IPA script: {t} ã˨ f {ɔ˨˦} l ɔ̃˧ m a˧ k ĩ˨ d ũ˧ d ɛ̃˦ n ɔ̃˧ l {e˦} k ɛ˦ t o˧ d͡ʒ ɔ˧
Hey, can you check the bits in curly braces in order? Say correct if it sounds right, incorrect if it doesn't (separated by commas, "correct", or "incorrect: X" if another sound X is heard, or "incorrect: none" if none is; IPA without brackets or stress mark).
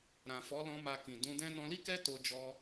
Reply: incorrect: ɾ, correct, incorrect: i˦